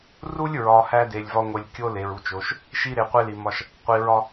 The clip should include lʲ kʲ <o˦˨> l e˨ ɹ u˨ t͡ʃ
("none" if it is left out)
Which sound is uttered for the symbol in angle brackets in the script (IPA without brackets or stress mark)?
o˦